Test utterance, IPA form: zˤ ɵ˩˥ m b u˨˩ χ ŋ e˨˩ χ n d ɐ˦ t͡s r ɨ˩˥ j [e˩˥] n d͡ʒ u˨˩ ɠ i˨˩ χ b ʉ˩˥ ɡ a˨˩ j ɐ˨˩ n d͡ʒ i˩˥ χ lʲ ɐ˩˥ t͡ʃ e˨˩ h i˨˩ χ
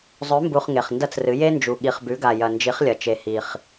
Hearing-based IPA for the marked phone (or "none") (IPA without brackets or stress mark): e˦